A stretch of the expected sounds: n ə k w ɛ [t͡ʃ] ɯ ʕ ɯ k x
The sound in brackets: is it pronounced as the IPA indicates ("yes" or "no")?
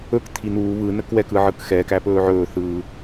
no